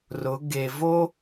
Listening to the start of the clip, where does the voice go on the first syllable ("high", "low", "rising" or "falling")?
rising